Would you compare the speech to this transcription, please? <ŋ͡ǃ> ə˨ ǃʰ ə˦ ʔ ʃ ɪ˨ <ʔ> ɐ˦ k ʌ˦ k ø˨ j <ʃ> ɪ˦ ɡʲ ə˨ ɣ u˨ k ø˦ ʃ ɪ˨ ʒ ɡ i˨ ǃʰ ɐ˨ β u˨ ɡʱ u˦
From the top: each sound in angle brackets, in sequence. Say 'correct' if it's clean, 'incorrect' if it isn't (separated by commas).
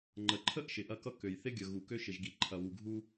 correct, correct, incorrect